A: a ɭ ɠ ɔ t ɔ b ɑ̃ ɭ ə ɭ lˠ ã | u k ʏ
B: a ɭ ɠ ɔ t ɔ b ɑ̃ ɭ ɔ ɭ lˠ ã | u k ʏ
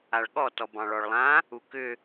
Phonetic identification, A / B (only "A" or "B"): B